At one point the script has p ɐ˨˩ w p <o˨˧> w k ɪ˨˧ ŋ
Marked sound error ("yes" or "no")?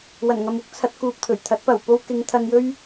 yes